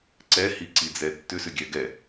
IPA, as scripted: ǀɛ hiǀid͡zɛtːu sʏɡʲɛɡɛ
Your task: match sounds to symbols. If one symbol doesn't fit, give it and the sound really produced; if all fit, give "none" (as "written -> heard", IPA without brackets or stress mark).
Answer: u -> ʏ